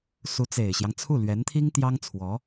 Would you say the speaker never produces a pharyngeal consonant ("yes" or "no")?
yes